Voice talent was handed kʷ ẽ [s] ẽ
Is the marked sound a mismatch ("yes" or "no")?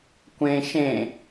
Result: yes